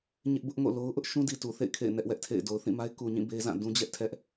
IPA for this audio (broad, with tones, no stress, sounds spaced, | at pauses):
ɲ ɪ˦ ʔ b ʊ˦ ʔ ŋ o̰˦˨ l o˦ ʊ̯ ʔ ʊ˦ ʔ ʃ ũ˦ d i˨ t u˨ θ ḛ˦˨ ɪ̯ kʰ ḛ˦˨ ɪ̯ n ɛ˦ ʔ w ɛ˦ ʔ tʰ ḛ˦˨ ɪ̯ d o˨ ʊ̯ θ ĩ˦˨ m a˦ ɪ̯ k u˨ ɲ ĩ˦˨ b e˦ z ã˦˨ d ũ˦ d͡ʑ ɛ˦ ʔ tʰ ɛ˦ ʔ